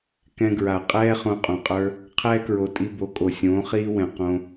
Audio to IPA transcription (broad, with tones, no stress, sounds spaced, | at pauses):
k ɛ̃˧ ɡ ɹ a˨ qʼ ɛː˦ χ õ˧ qʼ õ˨ qʼ ə˞˦ | qʰ ɛː˦ k ɹ o˨ tʼ i˧ b o˨˦ kʼ o˨ sʲ õː˨˦ χ iː˦ w ɛ̃˨ q õ˧